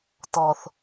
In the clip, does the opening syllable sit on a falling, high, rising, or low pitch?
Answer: low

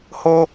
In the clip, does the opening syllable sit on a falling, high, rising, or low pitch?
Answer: high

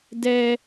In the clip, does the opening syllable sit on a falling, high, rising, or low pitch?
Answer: high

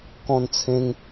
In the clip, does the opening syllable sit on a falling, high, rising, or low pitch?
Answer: high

